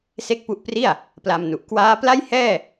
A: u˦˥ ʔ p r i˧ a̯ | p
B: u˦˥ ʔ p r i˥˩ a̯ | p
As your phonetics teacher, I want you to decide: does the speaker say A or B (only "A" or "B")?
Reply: B